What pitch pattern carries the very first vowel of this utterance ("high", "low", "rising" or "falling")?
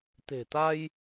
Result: low